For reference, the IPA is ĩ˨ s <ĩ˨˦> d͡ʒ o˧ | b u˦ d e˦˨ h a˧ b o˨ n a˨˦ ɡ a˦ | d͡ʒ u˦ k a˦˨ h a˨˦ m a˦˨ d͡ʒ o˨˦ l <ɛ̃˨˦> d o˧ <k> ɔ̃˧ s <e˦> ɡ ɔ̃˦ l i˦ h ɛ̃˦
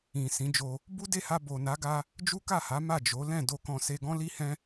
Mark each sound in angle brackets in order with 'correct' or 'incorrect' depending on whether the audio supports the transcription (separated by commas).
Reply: correct, incorrect, correct, incorrect